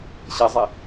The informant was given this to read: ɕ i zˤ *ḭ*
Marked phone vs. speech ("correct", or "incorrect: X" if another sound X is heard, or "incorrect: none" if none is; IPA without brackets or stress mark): incorrect: i